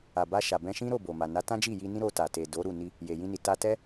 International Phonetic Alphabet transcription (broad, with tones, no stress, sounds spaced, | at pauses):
a˨ b a˧ ʃ a˨ b ɛ̃˧ ʃ ĩ˦ ɾ o˦˨ b o˨ m a˨ n a˨˦ t ã˦ d͡ʒ i˦˨ j i˧ n ĩ˦ ɾ o˧ t a˨ t e˨ d o˨˦ ɾ u˦˨ n i˧ | j e˨ j ĩ˧ n i˨ t a˧ t ɛ˦